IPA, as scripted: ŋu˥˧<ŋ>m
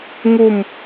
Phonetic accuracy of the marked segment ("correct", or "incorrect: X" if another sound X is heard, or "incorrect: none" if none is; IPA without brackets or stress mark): incorrect: none